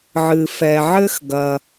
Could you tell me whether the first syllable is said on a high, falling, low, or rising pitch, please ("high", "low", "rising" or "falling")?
low